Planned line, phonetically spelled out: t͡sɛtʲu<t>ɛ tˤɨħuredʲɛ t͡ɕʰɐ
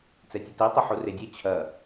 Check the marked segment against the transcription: correct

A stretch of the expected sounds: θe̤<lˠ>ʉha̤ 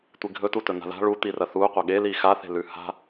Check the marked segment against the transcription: incorrect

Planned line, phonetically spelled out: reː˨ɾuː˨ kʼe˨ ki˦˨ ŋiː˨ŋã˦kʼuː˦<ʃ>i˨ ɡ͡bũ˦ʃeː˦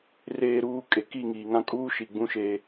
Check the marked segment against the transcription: correct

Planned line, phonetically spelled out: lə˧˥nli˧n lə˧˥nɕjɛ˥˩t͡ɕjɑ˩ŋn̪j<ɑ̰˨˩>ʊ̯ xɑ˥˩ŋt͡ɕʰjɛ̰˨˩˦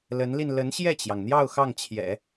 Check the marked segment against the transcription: incorrect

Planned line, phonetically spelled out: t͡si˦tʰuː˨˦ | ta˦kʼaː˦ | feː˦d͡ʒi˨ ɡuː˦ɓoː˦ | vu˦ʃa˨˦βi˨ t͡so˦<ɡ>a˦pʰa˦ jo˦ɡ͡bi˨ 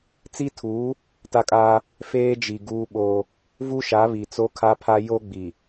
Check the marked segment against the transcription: incorrect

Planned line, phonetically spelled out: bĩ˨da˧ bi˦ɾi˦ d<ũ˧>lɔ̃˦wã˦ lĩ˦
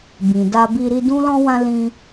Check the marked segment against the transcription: incorrect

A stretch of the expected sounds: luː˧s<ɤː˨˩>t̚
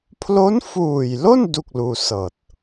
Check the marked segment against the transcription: correct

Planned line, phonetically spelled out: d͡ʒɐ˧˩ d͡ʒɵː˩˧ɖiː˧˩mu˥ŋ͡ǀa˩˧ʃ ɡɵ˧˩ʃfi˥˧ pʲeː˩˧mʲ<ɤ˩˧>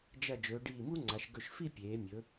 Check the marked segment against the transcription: incorrect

